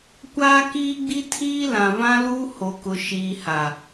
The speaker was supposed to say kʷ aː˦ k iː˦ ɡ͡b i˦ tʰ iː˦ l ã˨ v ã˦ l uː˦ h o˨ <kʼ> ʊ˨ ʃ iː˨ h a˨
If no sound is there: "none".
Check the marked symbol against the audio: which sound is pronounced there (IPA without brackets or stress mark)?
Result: k